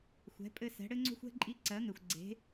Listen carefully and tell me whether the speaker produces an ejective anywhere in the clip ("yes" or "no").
yes